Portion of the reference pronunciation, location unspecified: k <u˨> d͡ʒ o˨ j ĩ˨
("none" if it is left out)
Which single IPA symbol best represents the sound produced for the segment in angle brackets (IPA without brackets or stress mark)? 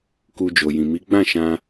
u˧